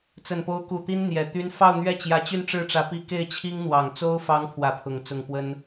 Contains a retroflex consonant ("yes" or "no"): yes